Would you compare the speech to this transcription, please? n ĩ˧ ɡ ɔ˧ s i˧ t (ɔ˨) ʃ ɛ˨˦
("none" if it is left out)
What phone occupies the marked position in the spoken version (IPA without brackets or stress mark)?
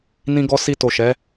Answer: o˨